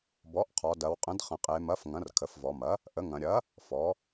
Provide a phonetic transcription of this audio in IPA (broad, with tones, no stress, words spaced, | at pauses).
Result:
bɔ˩˥ʔqʰɔ˩˧ dɐ˩˧wqʼə̃˩˥dχə̃˩˧ qʼe˩˧mɐ˩˥f ŋɐ̃˩˥rkʰə˩˧fvɔ˩˧mɐ˩˥ | ʔə˩˥ŋɐ̃˩˧ ɾʲɐ˩˥ | fɔ˩˥